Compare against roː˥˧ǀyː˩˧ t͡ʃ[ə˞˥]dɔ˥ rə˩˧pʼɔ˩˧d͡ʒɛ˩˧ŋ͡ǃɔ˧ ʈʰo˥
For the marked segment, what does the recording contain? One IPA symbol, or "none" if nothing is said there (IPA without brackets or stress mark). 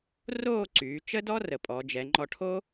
ə˥